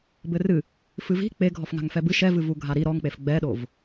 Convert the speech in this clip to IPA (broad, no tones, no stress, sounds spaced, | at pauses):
b ɘ r ɨ | f ɨ v i̤ k͡p e ɡʱ ɔ f ŋ a̤ ŋ f ɛ b ɨ ʃ ɛ v ɨ v u ɡʱ a ɾ i ɾ ɔ ŋ k͡p e f ɡ͡b ɛ ɗ o v